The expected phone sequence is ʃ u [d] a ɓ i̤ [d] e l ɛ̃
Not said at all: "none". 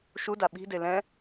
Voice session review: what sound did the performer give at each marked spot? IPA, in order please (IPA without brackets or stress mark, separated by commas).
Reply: d, d